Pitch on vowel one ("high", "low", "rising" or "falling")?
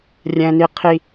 high